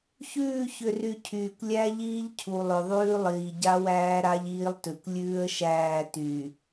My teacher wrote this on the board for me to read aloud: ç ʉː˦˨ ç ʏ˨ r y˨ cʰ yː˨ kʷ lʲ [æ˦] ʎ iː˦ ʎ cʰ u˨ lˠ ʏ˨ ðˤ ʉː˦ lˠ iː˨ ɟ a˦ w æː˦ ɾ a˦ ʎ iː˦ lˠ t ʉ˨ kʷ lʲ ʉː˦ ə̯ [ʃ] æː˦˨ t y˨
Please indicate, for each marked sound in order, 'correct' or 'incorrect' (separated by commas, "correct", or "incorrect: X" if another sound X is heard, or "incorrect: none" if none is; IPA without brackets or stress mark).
correct, correct